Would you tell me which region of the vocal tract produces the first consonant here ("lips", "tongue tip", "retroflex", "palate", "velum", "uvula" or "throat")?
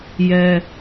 palate